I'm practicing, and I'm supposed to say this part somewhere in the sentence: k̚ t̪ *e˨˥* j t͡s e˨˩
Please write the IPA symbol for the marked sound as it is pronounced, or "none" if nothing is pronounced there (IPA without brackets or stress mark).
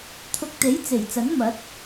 e˨˥